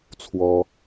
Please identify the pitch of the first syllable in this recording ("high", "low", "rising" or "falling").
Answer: high